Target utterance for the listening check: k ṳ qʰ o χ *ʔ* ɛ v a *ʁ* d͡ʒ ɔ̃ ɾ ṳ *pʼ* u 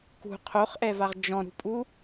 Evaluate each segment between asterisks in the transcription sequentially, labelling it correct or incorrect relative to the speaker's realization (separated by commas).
correct, correct, correct